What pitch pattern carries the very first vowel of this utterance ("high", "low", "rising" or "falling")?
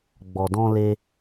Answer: low